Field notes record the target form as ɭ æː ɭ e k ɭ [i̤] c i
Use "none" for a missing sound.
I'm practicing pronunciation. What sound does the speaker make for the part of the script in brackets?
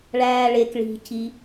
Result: i̤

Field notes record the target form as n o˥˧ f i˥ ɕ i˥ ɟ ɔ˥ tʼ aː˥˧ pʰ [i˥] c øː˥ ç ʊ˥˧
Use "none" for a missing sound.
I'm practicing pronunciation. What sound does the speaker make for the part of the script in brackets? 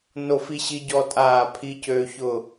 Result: i˥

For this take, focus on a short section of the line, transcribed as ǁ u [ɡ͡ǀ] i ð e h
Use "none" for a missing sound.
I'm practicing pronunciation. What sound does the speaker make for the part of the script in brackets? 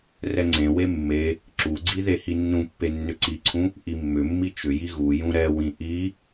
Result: ɡ͡ǀ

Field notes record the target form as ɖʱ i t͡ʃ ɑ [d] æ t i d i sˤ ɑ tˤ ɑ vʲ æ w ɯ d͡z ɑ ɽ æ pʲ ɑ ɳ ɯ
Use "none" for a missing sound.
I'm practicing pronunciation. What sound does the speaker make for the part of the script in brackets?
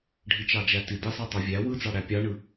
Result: d͡ʒ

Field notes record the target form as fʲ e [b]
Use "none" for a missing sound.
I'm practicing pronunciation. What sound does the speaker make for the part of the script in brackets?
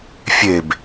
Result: b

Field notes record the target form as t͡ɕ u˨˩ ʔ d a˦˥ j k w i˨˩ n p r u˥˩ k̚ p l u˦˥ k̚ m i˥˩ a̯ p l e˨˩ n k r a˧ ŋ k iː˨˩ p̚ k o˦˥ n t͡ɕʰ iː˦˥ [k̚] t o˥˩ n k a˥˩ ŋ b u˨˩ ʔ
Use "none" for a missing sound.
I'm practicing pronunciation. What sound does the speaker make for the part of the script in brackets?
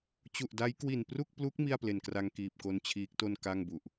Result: k̚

